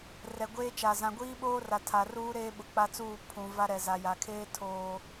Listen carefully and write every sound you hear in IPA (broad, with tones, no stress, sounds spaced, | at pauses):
r ɛ˨ ɡʷ eː˦ t͡ʃ a˨ z ã˨ ɡʷ iː˦ ɓ oː˦ r a˨ tʰ a˨ r uː˦ ɾ eː˦ ɓ ʊ˨ k͡p a˦ t͡s uː˦˨ pʰ ũ˨ v a˦ ɾ ɛ˨ z a˨ j a˨ kʰ eː˦ tʰ oː˦